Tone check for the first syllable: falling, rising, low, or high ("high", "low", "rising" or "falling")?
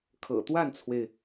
low